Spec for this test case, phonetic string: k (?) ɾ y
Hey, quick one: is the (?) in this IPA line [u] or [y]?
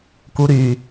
u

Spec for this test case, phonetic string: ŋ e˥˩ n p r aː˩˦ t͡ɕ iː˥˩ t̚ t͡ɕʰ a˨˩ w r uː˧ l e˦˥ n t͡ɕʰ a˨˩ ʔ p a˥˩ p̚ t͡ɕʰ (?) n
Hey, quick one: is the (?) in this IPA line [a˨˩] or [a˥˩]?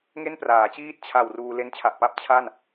a˥˩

